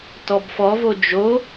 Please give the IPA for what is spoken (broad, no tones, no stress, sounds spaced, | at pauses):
t ɔ b f ɔ v o d͡ʒ o